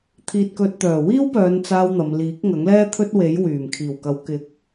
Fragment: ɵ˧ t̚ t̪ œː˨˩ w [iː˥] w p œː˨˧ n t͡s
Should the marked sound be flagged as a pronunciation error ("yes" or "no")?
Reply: no